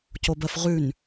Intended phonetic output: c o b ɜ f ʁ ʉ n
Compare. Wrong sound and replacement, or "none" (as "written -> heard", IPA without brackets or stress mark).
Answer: none